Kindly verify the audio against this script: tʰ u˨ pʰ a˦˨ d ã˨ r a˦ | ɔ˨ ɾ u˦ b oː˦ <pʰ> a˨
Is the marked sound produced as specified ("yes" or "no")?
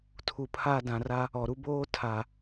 no